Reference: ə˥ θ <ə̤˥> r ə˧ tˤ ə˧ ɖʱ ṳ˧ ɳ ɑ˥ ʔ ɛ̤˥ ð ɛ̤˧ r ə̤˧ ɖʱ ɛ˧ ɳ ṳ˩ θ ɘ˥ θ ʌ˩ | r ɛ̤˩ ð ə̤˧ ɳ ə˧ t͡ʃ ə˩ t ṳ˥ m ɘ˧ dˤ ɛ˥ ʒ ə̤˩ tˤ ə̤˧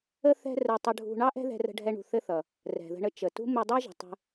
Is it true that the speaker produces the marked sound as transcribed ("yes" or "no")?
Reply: no